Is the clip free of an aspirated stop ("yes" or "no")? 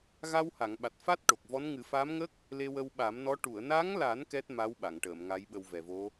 yes